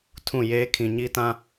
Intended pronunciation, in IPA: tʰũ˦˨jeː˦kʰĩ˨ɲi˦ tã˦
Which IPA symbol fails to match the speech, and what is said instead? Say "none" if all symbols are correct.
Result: none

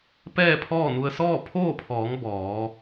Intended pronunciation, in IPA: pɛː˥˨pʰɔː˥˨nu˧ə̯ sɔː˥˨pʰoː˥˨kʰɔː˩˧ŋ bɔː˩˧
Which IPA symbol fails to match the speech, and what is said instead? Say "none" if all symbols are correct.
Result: kʰ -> pʰ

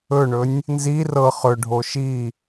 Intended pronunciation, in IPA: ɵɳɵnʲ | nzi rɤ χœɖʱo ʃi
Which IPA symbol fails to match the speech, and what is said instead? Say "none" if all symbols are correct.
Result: œ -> ɵ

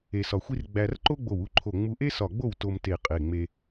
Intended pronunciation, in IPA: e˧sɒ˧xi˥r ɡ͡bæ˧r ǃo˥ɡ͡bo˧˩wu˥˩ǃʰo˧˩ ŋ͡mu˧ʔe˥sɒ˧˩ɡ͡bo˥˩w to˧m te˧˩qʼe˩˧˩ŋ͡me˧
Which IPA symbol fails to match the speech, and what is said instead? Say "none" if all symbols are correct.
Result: x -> xʷ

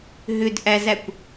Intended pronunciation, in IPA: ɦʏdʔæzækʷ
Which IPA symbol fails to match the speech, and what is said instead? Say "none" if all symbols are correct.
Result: none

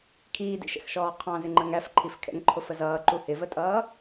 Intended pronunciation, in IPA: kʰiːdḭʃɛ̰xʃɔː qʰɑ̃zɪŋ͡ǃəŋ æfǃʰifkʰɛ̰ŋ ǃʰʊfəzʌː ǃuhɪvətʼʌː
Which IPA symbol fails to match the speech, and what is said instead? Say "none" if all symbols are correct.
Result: none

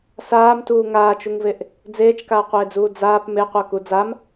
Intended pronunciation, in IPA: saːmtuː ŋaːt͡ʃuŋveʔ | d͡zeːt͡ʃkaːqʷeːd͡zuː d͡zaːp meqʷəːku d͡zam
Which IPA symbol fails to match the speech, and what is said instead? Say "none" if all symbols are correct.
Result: none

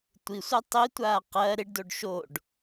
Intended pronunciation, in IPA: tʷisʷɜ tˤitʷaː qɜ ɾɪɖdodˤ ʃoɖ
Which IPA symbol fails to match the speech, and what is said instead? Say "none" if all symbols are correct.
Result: dˤ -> ɖ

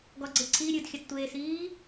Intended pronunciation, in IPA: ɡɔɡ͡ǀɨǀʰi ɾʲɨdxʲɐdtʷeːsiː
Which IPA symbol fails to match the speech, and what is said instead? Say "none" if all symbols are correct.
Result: none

